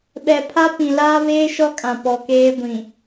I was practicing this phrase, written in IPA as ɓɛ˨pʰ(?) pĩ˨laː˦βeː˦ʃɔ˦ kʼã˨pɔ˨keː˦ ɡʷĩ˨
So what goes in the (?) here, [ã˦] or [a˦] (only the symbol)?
a˦